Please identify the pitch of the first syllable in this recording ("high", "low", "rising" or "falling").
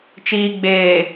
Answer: low